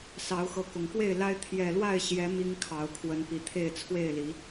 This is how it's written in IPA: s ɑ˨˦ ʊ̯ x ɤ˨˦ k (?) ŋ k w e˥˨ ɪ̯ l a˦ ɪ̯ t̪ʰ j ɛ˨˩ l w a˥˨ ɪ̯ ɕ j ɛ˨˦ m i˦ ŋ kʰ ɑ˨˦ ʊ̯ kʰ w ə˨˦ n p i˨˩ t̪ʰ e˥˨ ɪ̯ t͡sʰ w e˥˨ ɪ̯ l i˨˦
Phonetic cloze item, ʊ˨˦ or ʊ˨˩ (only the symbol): ʊ˨˩